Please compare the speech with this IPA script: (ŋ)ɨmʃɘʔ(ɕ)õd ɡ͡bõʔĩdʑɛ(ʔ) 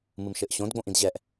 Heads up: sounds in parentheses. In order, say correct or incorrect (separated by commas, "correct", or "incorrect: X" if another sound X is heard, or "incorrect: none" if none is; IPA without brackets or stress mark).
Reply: incorrect: m, correct, correct